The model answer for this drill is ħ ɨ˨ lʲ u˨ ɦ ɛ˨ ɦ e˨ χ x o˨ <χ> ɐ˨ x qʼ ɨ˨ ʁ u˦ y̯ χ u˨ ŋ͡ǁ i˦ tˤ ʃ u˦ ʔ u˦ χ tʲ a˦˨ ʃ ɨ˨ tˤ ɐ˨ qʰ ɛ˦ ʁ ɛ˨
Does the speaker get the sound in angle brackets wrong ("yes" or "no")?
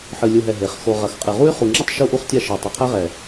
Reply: yes